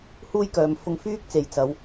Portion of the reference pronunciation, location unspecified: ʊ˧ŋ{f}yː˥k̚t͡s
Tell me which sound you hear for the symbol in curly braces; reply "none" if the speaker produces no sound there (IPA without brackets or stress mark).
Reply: f